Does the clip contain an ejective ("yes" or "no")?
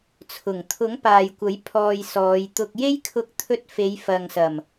no